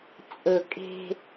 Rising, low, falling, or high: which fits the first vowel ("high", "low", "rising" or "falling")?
low